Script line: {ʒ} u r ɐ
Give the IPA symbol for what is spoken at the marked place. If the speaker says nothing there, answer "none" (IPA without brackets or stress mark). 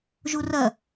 ʒ